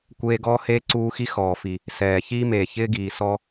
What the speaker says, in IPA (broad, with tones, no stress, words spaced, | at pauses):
kʷeː˦ɡɔː˥ heː˥ǀuː˦xi˥ xɔː˩fi˩ | sɛː˩ çiː˥meː˩ çɪː˥ɡiː˩ sɔ˦